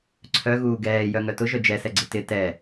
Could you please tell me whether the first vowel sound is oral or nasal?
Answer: oral